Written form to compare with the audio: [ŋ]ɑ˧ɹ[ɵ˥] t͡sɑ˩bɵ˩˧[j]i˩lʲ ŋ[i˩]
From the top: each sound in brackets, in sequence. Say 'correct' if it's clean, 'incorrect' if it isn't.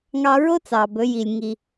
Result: correct, incorrect: o˥, correct, correct

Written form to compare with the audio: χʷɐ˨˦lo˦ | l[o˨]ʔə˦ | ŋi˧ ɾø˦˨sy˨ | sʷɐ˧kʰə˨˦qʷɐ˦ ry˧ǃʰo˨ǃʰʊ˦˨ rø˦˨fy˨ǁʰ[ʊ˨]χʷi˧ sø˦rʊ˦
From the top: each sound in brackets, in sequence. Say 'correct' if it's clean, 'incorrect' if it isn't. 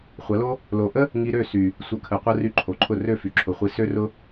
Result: correct, correct

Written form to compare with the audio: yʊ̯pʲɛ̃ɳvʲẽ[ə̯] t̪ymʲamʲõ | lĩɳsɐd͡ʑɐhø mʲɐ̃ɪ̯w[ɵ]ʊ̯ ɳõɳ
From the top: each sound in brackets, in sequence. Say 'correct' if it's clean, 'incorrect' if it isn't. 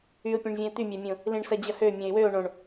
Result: correct, incorrect: ø

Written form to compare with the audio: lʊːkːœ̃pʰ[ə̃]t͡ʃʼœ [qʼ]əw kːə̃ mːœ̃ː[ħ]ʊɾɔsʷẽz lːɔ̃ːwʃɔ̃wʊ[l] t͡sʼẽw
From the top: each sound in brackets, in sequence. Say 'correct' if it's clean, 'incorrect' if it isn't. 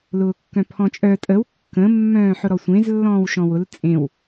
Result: incorrect: ɔ̃, incorrect: tʼ, correct, correct

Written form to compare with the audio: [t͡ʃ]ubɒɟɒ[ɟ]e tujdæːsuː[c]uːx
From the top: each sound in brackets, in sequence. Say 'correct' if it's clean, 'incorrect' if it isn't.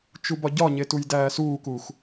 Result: correct, incorrect: ɲ, incorrect: k

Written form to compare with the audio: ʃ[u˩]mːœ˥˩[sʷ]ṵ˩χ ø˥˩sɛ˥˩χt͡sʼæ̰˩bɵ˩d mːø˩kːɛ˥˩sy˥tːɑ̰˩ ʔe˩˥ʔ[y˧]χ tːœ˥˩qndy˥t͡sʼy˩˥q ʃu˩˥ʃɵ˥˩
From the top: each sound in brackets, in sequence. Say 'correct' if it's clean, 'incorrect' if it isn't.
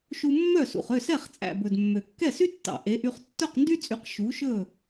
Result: incorrect: u˧, incorrect: s, correct

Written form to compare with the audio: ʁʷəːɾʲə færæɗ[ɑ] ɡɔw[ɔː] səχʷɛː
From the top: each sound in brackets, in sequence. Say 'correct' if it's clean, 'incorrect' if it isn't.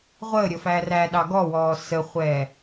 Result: correct, correct

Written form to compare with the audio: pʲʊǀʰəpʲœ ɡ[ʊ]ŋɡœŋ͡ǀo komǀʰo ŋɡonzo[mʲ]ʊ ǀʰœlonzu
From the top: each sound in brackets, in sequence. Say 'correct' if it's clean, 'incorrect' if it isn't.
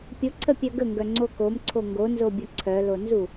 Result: incorrect: ə, incorrect: bʲ

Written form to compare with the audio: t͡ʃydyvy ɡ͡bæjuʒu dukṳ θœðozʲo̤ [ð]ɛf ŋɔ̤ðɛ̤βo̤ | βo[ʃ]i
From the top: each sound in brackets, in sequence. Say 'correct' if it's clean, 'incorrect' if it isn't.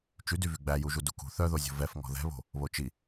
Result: incorrect: v, incorrect: t͡ʃ

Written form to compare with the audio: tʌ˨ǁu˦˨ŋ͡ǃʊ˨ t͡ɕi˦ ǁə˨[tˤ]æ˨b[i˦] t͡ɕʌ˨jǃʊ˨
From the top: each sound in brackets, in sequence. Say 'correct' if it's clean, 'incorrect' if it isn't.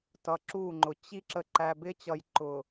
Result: incorrect: ǃ, incorrect: ɪ˦

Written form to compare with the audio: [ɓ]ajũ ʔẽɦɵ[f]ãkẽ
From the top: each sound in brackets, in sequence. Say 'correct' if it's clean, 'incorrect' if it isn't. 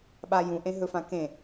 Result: correct, correct

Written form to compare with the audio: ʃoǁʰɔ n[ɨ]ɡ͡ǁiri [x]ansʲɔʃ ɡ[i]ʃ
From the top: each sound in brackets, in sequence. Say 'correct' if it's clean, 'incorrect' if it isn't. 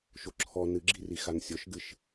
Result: correct, correct, incorrect: ɨ

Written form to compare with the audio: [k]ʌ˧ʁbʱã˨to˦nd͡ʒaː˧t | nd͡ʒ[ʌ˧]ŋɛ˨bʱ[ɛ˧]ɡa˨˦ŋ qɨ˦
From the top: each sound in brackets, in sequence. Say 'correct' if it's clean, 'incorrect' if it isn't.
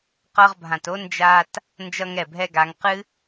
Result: incorrect: q, correct, correct

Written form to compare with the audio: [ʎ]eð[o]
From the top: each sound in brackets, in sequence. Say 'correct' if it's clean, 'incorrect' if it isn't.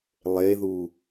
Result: incorrect: lˠ, incorrect: u

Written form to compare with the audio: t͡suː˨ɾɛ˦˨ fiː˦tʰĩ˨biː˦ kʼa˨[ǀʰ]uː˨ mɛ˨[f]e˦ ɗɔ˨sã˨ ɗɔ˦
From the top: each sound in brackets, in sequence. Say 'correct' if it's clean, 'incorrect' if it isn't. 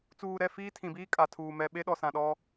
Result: incorrect: tʰ, incorrect: ɓ

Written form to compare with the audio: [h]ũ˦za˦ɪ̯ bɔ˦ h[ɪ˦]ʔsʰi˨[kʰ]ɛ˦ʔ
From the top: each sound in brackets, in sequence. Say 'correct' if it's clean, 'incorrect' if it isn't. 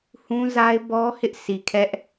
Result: correct, correct, correct

